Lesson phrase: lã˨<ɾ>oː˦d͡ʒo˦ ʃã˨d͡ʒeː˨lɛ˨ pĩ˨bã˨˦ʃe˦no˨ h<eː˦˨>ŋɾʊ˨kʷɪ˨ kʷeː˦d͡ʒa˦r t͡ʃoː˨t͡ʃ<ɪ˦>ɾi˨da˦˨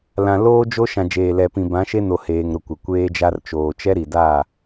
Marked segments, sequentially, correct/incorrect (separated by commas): incorrect, incorrect, incorrect